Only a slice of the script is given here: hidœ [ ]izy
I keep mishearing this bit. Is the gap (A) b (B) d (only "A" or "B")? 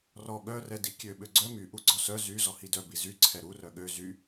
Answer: A